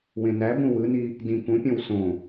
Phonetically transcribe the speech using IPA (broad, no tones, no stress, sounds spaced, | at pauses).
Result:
w ẽ n æ b ũ w ɯ n i | d ĩ k ũ pʲ õ w s õ